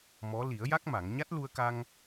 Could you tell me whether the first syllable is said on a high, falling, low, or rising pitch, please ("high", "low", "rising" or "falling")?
rising